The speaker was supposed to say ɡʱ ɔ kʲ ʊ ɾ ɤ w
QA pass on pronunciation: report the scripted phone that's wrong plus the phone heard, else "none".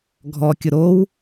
ɤ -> o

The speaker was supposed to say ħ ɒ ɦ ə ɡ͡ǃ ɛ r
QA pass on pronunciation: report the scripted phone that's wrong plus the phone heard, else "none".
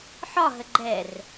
none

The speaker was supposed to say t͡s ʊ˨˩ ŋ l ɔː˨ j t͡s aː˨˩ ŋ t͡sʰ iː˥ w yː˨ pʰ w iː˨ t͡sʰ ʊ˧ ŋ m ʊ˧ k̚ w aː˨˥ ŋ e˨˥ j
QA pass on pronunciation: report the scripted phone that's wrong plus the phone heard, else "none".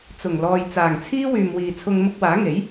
pʰ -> m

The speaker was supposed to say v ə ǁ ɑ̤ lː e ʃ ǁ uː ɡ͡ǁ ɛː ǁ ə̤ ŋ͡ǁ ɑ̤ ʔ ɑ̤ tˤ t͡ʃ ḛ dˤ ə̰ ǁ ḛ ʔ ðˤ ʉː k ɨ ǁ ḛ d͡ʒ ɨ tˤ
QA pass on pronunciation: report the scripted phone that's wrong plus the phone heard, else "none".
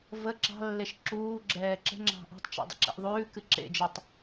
none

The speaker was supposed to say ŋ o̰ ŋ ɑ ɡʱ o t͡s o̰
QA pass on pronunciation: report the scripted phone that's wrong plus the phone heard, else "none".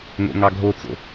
none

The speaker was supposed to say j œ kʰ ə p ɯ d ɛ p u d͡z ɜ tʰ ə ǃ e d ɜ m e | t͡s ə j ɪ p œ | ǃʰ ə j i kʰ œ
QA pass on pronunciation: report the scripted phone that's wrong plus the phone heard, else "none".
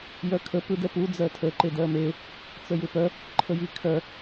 none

